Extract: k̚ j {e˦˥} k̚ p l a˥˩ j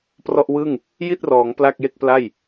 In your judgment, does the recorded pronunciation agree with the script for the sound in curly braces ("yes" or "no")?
no